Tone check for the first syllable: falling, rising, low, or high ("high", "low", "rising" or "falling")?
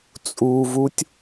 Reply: low